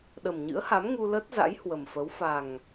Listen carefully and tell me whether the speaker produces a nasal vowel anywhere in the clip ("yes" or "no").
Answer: no